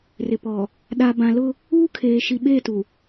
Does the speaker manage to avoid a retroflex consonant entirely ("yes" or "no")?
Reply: yes